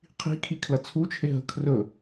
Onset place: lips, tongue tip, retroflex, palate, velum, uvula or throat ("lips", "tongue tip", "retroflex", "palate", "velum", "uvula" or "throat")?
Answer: uvula